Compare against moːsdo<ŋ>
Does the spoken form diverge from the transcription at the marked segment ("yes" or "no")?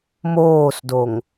no